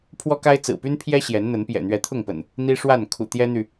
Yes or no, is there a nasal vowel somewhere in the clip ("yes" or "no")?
no